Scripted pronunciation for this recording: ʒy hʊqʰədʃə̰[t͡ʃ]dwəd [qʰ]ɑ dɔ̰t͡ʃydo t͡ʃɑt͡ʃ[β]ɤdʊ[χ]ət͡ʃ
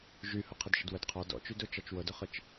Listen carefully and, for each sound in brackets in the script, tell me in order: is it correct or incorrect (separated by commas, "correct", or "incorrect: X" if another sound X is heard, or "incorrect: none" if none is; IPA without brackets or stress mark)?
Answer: incorrect: none, correct, incorrect: w, correct